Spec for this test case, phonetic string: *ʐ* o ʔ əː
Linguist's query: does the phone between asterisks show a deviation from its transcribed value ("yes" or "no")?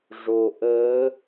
no